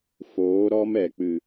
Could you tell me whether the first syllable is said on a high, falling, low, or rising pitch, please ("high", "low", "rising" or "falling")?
rising